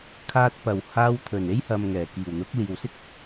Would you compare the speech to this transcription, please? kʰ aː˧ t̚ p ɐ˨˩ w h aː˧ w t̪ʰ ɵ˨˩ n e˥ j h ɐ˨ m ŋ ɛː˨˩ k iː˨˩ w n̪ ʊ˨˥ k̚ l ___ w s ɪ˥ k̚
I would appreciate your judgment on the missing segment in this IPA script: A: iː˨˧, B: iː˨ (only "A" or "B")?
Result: B